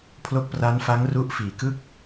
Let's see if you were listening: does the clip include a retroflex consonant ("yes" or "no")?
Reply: no